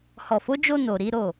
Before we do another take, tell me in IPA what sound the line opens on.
h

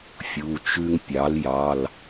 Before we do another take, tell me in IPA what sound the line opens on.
fʲ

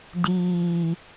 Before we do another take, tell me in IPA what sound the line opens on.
d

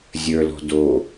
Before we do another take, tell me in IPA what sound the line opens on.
zʲ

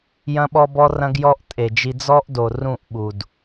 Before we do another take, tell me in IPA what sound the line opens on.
j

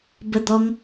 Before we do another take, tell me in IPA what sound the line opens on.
b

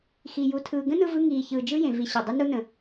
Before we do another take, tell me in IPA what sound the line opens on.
x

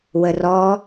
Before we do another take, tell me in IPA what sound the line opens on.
w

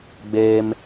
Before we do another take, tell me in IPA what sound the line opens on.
ɡ͡b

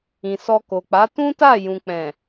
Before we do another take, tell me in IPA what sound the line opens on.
ĩ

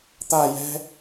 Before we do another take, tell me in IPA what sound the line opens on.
t̪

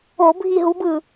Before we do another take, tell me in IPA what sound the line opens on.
o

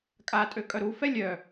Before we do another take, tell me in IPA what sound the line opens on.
kʼ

